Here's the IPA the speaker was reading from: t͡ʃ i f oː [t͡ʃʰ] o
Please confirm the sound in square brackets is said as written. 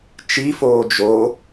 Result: no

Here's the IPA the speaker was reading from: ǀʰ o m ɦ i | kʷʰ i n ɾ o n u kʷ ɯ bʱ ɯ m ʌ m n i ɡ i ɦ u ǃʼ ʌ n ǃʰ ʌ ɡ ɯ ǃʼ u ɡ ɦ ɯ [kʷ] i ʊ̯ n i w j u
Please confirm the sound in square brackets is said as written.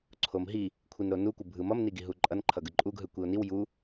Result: yes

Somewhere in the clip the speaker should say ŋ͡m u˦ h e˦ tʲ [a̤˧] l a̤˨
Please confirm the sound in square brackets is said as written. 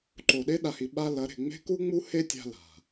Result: yes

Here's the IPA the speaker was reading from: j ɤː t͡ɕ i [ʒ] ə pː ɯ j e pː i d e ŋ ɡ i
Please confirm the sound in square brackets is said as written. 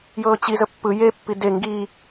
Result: no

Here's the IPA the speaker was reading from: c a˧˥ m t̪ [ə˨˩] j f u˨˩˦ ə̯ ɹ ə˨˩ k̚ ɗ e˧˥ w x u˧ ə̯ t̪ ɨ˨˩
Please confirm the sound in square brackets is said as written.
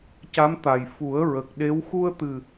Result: no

